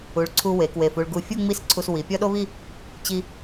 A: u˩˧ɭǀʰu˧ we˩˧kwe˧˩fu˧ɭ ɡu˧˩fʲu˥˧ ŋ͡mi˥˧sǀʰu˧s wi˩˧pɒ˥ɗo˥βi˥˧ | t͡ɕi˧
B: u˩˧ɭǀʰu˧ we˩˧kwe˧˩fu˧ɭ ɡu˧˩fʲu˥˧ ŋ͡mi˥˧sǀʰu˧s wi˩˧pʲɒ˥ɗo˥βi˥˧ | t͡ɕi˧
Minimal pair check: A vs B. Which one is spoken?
B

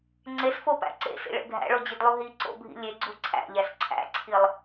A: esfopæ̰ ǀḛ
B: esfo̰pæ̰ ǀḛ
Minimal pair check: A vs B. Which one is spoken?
A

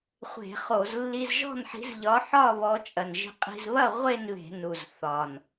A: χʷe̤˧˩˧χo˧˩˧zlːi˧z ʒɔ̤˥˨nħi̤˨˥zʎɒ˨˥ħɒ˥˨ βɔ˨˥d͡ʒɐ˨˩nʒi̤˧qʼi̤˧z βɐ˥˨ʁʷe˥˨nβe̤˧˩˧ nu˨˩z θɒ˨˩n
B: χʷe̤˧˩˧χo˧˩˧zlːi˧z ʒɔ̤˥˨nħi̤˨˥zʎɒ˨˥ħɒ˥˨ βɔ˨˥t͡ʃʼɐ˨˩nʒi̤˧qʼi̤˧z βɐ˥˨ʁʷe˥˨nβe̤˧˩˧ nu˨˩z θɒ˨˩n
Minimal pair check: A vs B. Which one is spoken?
B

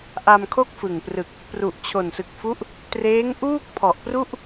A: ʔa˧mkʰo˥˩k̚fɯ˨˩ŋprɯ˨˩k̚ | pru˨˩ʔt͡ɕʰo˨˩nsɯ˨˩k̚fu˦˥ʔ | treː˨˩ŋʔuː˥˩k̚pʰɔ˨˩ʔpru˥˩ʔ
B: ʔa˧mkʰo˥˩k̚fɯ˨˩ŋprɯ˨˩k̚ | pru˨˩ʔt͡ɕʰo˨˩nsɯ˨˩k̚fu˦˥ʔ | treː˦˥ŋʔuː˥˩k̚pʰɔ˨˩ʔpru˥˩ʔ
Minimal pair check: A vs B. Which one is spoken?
B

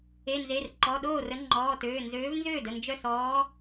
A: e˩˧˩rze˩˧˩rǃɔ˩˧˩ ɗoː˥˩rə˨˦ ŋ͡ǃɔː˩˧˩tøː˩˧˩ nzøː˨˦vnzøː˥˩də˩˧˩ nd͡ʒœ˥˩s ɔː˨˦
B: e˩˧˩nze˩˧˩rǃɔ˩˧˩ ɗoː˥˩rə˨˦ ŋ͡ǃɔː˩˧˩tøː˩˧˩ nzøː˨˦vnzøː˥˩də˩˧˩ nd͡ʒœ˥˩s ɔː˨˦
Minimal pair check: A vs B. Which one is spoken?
B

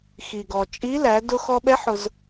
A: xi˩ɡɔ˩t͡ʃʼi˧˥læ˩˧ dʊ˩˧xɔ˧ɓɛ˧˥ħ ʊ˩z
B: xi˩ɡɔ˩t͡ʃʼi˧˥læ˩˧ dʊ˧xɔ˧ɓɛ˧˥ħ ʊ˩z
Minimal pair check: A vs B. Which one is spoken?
B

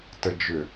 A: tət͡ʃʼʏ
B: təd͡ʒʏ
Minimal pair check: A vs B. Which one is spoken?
B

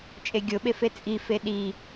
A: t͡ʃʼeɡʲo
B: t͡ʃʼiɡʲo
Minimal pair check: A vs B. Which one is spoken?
A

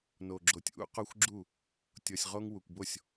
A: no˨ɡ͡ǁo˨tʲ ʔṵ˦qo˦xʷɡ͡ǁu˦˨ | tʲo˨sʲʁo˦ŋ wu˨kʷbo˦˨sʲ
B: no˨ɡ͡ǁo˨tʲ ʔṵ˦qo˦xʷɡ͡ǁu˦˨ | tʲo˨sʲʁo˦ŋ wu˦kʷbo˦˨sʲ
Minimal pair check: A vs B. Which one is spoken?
A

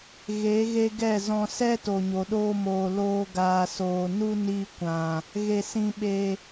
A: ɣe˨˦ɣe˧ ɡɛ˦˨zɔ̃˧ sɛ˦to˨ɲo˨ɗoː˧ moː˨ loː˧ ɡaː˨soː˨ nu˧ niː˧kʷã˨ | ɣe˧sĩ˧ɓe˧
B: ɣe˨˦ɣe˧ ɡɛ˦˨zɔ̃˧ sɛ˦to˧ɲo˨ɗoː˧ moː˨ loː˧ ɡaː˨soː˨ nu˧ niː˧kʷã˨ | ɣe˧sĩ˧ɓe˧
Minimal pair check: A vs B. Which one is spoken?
A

